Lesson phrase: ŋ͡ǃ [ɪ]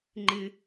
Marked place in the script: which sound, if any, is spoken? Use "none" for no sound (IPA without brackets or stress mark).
ɪ